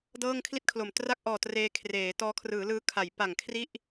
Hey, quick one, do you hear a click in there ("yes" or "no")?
no